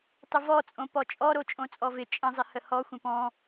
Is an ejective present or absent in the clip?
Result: present